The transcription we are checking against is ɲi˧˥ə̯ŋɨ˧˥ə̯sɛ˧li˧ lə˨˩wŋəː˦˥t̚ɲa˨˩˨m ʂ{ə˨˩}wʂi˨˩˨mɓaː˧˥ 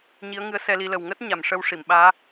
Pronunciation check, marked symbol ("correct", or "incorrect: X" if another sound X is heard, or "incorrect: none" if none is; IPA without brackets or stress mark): incorrect: ə˧